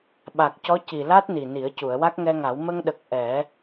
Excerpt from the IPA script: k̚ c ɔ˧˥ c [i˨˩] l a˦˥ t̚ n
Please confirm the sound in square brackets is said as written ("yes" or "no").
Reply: yes